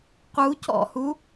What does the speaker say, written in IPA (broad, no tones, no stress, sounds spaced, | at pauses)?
q u c ɔ̰ h u